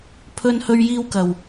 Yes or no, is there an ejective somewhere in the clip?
no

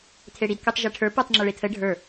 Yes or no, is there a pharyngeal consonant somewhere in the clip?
no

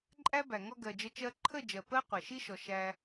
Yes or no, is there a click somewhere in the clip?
yes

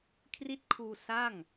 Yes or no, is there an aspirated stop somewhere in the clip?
yes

